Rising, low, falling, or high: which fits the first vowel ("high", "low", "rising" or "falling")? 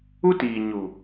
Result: high